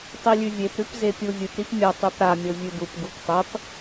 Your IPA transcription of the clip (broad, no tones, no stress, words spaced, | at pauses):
tˤilʲʉvʲep ɾʉpzepʲuvʲɨp ɾipmʲɐ tˤʉpɾa mʲovʲʉdup ɡuptˤɐp